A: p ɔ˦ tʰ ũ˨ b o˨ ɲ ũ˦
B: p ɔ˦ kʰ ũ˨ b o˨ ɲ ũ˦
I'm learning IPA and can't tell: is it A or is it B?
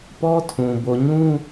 A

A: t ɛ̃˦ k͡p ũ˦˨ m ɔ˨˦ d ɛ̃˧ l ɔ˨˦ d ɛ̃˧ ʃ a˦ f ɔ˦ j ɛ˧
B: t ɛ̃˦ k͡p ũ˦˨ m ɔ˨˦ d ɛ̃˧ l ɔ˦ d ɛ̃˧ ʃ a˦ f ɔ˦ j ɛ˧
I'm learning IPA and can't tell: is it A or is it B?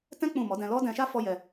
B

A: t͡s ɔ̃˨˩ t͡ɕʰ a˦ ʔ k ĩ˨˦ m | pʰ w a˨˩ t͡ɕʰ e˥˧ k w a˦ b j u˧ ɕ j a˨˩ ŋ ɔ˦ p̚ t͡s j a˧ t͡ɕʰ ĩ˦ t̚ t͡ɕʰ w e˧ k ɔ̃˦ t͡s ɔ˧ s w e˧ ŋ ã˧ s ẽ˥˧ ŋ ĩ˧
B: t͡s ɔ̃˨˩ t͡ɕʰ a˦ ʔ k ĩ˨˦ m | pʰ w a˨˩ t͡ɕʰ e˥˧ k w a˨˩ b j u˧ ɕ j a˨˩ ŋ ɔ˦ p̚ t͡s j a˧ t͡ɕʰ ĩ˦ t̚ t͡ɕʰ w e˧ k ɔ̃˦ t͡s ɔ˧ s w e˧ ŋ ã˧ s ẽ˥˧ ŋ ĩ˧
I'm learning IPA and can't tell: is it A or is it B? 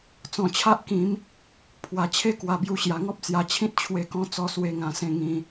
B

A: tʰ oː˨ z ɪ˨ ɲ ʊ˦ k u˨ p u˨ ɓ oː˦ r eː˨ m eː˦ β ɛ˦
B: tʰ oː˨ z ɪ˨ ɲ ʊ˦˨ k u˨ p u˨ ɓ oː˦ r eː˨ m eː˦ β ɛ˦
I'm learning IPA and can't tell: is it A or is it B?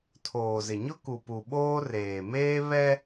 A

